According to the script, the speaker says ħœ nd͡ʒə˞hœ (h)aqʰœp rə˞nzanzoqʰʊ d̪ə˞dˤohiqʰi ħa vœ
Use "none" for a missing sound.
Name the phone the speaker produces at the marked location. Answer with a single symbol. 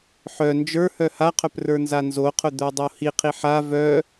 h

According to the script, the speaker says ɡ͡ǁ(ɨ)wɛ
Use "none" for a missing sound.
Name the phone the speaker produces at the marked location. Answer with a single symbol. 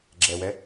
ɛ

